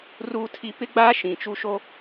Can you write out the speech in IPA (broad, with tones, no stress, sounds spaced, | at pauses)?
r uː˦ tʰ i˦ p ɪ˦ ɡ͡b aː˦ ʃ ĩ˨ t͡ʃ u˦ ʃ o˦